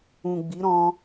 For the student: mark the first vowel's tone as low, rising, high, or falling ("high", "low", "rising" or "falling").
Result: low